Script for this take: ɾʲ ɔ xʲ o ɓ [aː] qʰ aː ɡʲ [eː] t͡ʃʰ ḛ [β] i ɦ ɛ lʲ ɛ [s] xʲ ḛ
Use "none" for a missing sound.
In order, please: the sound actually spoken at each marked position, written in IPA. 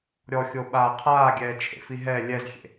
aː, ɛː, f, z

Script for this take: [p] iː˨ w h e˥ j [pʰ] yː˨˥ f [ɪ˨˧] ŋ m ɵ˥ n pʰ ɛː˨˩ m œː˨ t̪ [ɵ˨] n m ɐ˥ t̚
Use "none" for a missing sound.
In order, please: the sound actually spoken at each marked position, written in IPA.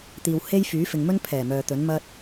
t̪, f, ɪ˨, ɵ˨˥

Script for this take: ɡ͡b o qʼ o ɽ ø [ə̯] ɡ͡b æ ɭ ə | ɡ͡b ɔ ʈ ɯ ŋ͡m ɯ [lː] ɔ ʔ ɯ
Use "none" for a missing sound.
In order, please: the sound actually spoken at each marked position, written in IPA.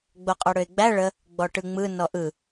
ɪ̯, n

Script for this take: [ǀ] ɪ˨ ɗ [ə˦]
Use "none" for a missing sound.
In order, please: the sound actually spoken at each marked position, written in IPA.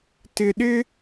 t, ɪ˦

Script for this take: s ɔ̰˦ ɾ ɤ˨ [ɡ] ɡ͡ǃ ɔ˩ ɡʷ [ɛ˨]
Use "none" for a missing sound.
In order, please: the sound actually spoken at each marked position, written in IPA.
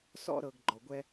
ɡ, ɛ˦

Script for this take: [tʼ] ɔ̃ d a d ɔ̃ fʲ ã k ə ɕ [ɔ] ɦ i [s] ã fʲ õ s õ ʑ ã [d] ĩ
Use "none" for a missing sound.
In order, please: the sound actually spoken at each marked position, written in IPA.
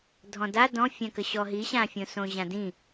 dʱ, ɔ, ɕ, d

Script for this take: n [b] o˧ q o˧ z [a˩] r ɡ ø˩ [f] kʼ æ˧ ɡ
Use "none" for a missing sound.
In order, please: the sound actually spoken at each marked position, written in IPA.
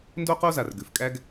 d, a˩, f

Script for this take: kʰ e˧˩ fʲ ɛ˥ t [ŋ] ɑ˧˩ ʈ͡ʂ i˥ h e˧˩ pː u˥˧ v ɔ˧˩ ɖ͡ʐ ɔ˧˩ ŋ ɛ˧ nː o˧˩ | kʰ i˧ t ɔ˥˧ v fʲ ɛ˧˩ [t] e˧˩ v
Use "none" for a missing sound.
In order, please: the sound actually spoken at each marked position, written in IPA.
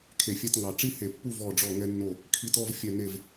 ŋ, n

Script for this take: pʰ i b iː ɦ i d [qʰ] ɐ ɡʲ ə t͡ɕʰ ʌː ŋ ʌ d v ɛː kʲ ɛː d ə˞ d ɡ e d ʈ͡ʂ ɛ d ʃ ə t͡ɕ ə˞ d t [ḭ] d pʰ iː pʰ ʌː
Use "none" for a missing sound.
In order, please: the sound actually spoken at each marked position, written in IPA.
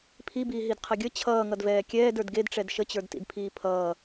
qʰ, ḭ

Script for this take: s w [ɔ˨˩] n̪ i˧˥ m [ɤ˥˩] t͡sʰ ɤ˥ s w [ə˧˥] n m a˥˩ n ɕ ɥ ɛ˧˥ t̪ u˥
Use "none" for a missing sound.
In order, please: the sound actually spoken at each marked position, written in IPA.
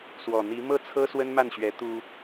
ɔ˨˩, ɤ˥˩, ə˥

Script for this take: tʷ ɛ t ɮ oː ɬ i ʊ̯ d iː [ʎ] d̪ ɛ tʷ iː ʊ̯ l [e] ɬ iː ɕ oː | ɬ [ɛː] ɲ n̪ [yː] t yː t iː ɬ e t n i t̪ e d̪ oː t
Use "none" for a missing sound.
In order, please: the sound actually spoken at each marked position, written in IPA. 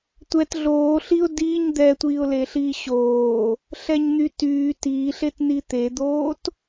ɲ, e, ɛ, y

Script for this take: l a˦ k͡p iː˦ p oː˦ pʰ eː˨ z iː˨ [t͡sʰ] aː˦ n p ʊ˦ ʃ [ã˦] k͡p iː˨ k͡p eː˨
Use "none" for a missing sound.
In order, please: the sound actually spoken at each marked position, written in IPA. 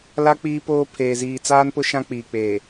t͡s, ã˦

